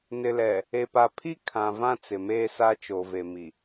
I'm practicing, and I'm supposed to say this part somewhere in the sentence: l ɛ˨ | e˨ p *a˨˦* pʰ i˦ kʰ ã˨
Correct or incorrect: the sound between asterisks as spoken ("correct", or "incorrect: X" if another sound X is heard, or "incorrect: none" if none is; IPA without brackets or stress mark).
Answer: incorrect: a˨